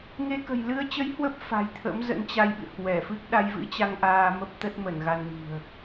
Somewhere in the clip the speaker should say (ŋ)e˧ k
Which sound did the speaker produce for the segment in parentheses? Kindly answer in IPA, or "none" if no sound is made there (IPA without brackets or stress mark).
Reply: ŋ